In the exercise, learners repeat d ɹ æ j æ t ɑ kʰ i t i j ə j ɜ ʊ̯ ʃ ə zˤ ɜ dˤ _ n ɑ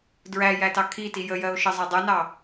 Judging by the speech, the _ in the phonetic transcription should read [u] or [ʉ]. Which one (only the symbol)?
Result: u